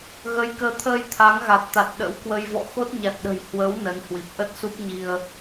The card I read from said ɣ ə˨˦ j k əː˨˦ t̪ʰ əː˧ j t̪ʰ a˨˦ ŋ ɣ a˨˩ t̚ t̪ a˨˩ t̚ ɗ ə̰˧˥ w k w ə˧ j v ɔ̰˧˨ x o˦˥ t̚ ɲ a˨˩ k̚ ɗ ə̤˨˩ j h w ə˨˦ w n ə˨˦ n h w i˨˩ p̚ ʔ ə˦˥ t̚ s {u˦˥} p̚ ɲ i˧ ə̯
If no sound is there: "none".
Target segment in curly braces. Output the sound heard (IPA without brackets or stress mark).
u˦˥